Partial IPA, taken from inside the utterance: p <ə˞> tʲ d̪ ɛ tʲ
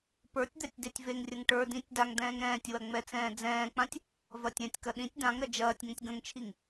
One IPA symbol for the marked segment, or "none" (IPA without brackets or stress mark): ə˞